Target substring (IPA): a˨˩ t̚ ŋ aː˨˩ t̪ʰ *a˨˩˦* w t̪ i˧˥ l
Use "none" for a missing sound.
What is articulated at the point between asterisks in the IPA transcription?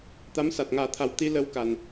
a˨˩˦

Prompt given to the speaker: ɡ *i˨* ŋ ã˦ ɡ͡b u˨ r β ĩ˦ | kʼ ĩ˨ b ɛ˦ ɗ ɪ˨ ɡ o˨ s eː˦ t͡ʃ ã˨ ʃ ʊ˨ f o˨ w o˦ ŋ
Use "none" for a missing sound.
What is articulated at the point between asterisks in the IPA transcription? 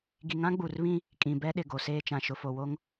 i˨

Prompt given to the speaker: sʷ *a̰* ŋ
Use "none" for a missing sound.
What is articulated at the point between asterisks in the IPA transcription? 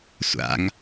a̰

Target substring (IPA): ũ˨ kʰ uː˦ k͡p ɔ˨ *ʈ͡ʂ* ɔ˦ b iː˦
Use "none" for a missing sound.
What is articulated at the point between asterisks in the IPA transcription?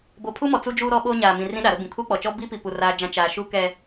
t͡ʃ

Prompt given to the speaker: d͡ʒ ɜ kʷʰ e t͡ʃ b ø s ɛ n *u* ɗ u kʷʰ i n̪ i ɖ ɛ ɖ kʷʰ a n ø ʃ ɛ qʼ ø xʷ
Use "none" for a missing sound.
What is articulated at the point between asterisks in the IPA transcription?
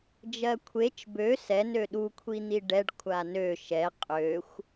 ø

